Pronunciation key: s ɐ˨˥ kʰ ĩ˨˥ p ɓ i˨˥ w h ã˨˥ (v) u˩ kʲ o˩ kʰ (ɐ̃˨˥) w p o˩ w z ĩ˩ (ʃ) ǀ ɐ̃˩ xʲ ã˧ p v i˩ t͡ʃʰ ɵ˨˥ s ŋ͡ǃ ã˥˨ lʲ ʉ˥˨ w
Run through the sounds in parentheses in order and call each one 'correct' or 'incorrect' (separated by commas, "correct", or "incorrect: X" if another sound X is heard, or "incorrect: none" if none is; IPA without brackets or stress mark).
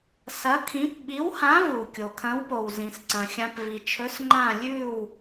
correct, correct, incorrect: s